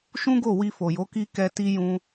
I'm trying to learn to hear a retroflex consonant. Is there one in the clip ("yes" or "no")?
no